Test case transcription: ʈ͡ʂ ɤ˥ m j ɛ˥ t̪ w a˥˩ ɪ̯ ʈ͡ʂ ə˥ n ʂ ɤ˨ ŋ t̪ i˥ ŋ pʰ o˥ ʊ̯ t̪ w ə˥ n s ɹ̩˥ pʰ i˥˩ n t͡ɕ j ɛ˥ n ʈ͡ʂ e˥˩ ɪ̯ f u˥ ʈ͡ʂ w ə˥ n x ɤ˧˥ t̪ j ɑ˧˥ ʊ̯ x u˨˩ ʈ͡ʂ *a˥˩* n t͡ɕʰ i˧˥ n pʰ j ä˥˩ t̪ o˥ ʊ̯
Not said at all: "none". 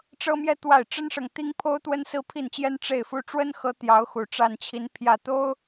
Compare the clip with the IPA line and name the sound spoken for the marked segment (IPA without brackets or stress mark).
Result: a˥˩